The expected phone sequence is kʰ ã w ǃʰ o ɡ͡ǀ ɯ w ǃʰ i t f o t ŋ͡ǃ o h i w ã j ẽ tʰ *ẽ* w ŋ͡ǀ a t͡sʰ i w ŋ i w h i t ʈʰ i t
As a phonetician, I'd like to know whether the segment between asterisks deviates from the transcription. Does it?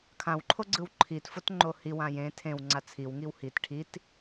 no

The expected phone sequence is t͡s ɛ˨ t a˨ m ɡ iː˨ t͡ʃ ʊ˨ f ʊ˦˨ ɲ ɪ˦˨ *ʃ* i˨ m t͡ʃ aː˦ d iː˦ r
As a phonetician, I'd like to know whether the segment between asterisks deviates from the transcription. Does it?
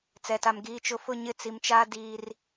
yes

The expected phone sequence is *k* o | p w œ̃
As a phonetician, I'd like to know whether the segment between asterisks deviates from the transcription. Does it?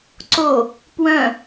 yes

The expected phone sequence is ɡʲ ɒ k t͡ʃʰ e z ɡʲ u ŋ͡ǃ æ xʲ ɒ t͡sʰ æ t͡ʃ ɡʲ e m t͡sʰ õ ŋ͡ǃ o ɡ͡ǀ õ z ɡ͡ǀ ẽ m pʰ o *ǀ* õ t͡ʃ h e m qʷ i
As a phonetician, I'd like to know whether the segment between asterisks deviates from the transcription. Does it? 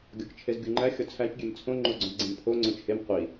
yes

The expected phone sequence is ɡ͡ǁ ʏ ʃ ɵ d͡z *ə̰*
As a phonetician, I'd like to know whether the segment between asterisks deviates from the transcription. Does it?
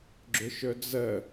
yes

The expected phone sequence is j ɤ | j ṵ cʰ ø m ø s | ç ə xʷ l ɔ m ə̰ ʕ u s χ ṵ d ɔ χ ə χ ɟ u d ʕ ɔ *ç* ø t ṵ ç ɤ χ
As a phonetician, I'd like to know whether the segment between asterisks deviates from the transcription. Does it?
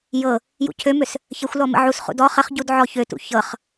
no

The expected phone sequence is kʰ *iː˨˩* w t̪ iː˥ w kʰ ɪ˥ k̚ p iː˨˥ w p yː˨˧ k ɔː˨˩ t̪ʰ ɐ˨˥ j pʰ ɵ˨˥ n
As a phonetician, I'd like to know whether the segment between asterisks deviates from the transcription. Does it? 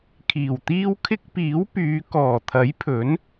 no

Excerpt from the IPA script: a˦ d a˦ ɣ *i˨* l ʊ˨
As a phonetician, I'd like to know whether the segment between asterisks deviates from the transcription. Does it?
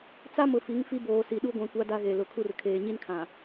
yes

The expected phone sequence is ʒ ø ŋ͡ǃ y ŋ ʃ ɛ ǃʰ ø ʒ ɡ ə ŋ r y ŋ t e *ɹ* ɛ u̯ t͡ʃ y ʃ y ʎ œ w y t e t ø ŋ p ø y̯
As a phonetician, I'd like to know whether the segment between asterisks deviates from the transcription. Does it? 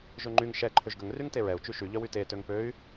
no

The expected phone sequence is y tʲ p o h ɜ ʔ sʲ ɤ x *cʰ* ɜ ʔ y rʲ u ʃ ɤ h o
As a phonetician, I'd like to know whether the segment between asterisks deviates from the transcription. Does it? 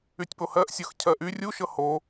no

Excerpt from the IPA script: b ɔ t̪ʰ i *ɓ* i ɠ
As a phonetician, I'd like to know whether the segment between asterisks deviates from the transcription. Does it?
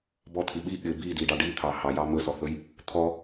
no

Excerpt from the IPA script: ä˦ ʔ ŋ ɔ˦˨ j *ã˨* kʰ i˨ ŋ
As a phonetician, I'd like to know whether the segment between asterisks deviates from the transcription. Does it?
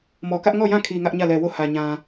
yes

